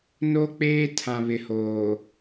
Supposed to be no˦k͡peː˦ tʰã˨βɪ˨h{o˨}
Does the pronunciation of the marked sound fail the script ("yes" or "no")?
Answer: yes